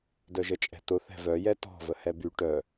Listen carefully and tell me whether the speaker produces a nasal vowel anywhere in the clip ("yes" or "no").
no